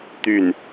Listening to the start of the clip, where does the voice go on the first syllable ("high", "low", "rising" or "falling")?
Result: falling